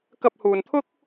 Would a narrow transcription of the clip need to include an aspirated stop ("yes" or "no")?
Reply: yes